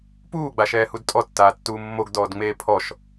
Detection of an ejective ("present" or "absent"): present